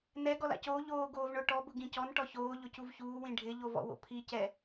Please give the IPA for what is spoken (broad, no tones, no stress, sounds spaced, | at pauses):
n ɛ ɡ ɔ l a̰ c oː ʎ oː ɡ oː v ɳ ʊ ʈ ɔ b ʊ ɡ ĩ c ɔ n ʈ ɔ ç oː ʎ ʊ c u v ç uː w ĩ ɖʱ ɪ ʎ o v ɔ̰ w o̰ pʰ i c ɛ